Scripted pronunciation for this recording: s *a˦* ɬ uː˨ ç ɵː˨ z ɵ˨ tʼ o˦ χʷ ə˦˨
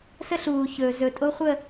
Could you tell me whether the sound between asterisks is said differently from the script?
yes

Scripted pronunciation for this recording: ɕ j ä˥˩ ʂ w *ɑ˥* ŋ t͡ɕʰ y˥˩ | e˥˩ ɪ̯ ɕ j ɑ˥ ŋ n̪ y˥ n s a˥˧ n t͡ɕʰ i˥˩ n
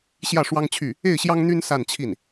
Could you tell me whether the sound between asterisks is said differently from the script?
no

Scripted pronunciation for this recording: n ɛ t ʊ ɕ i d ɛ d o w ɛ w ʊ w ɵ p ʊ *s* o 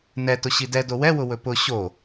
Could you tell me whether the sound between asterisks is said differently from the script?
yes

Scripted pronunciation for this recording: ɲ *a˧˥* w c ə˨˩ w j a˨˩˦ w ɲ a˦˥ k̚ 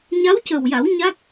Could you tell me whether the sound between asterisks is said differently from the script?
no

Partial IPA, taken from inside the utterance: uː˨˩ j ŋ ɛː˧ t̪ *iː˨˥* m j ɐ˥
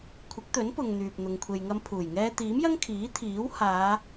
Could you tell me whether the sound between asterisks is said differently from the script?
no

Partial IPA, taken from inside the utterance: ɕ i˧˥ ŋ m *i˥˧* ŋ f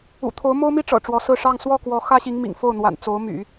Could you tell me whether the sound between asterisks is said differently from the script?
yes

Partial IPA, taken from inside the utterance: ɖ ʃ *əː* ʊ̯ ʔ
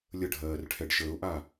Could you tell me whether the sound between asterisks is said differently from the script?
no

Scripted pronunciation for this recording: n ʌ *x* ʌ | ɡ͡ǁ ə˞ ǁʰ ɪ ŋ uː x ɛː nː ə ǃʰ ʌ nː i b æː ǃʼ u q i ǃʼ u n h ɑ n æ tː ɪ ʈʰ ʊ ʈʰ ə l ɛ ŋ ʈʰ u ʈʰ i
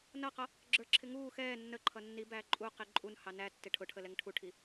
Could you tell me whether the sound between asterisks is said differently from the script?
yes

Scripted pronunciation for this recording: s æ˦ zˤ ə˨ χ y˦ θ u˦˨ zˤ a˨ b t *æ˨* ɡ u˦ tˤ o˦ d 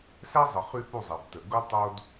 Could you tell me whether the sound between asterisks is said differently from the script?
yes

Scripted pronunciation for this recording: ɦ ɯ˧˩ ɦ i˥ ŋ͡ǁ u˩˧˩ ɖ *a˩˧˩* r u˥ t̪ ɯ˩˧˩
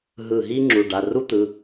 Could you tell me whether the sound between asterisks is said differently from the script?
no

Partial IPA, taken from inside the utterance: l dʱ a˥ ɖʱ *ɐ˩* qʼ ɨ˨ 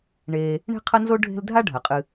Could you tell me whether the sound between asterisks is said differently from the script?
no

